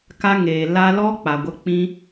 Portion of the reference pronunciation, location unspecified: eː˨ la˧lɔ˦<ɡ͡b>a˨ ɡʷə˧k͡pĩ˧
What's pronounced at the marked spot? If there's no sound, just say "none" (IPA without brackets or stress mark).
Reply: k͡p